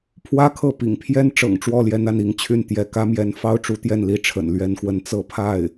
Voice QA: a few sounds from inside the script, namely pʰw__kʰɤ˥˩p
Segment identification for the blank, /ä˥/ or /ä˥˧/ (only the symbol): ä˥